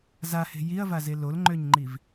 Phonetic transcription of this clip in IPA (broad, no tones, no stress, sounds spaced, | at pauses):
z a h e̤ j i ɐ̯ v a z e l o l ŋ͡ǃ ø ɲ ŋ͡ǃ i v